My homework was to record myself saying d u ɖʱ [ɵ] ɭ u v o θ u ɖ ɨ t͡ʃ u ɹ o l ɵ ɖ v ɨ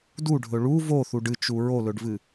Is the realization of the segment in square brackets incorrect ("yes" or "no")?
no